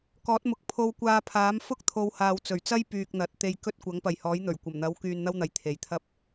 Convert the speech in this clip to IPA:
k ɔː˨˥ t̚ m ʊ˨ k̚ pʰ o˧ w kʷ aː˧ pʰ aː˨˥ m f ʊ˥ k̚ t̪ʰ o˨˧ w h aː˨ w t͡s ɵ˨˩ ɥ t͡s ɐ˥ j p yː˧ k̚ n̪ ɐ˨˥ t̚ t̪ e˧ j k ɵ˥ t̚ kʷ ɐ˨˥ ŋ p ɐ˨ j h ɔː˨˥ j n̪ ɵ˨˩ ɥ kʷ ɐ˨˩ m n̪ ɐ˨˥ w k yː˧ n n̪ ɐ˥ w n̪ ɐ˨ j t̪ʰ e˨ j t̪ʰ ɐ˥ p̚

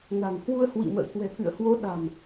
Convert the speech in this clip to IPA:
n a̤˨˩ ŋ h w u˧ ə̯ h w ḭ˧˨ m ə̰ː˧˨ k w ɛ̤˨˩ k ɨ̰˧˨ ə̯ h w o˨˦ ɗ a̤˨˩ m

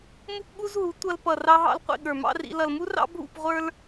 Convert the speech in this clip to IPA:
m u˦ p ɠ u˦ z ɦ u˨˦ tʷ ʌ˧ l p ʌ˨ r ɑ˧ ɦ ɑ̰˧ l qʷ ḭ˨ ɠ ə˞˨ m ɑ̰˦ r ḭ˧ l ʌ˨ l m u˦ r ɑ̰˦ bʱ ṵ˦˨ p ʁʷ ə˞˦ l

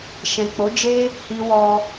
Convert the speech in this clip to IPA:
ʃ ɛ̃˨ k͡p o˨˦ d͡ʒ e˦ | h i˧ w ɔ˧

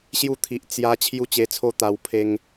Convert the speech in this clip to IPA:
ɕ j u˥˧ t̪ʰ i˨ ʔ t͡s j a˧ t͡ɕʰ j u˦ t͡ɕ e˧ t͡sʰ o˥˧ t̪ a˧ w pʰ e˧ ŋ

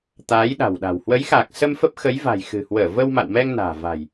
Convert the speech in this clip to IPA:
t̪ aː˨˦ j ɗ a̤˨˩ w ɗ a̤˨˩ w h w ə˨˦ j x aː˨˩ k̚ s ə˧ m f ə˦˥ p̚ x ə˨˦ j v a̤˨˩ j x ɨ̤˨˩ h w əː˧˩ v ə˧ w m a̰˧˨ w m ɛ˧ ŋ n a̤ː˨˩ v a̤˨˩ j

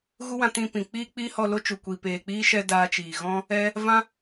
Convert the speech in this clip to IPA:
ɣ u˦ w ã˧ t ĩ˧ p ĩ˨ k͡p iː˦ k͡p iː˦ h ɔ˧ l o˦ t͡ʃ u˨ kʷ i˨ p eː˨ k͡p iː˦ ʃ ɛ˧ d aː˧ t͡ʃ iː˨ ɣ ɔ̃˦ | ɛ˦ | v ã˦

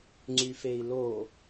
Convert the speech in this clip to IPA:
ŋ͡ǀ y f e i̯ l o

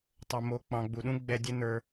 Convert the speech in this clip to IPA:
tˤ o˨ m o˨˦ k͡p ɑ̃˨ ɡ͡b u˨ ɗ ũ˦ ɡ͡b ɛ˧ dʲ ə˦ n ə˞˧

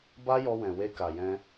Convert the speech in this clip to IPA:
b a˦ j ɔ˧ w ɛ̃˨ w e˧ k a˨ j ɛ̃˧

